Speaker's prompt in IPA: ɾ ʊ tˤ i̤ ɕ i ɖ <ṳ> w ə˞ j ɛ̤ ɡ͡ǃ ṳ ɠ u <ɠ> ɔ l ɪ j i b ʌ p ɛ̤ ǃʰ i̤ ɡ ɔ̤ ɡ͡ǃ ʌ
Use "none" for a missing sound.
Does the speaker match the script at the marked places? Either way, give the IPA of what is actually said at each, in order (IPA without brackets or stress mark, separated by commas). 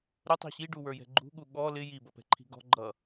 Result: u, ɠ